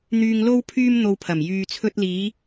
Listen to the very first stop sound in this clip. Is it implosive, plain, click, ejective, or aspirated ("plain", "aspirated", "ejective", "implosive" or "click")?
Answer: aspirated